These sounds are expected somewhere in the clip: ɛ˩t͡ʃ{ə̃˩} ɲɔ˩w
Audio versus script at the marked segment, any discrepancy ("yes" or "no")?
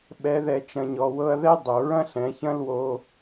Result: yes